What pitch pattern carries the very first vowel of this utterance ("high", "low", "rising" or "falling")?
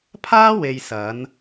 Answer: high